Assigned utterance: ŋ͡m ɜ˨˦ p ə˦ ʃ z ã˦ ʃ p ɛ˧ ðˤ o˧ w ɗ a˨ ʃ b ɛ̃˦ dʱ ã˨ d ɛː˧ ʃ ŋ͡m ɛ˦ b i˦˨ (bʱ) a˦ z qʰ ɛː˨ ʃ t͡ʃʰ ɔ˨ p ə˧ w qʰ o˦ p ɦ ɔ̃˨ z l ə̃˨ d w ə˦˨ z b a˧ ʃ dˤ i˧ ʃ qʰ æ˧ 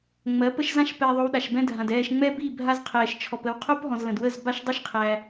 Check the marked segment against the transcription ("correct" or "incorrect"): correct